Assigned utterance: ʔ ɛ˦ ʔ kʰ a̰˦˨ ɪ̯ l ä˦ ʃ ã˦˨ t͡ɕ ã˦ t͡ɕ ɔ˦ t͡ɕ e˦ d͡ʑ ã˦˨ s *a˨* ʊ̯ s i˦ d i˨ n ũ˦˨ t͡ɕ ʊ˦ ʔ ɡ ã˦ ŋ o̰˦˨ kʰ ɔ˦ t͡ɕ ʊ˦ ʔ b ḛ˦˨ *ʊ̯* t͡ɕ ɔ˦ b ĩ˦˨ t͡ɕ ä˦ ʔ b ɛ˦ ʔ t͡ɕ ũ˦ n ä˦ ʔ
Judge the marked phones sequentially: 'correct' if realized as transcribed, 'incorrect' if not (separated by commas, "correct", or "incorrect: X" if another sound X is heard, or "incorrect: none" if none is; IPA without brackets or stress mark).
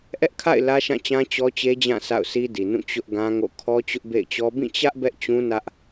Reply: incorrect: a̰˦˨, incorrect: ɪ̯